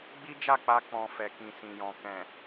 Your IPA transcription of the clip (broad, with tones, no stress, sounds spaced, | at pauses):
ɡ͡b i˦ d͡ʒ a˦˨ k͡p a˧ k͡p ɔ̃˨ f ɛ˨ k ĩ˨ s ĩ˨ j ɔ̃˨ k ɛ̃˨